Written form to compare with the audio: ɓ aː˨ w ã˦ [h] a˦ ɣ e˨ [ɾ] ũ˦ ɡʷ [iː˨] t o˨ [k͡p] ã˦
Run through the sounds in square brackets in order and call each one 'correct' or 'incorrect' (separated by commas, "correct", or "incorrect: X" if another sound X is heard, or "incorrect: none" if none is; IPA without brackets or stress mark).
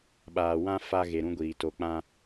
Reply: incorrect: f, correct, correct, correct